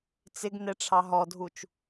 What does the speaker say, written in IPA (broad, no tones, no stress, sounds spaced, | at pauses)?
t͡s ɪ ɡ n ɛ ʈ͡ʂʰ ɑ ɦ ɔ dʱ u t͡ʃ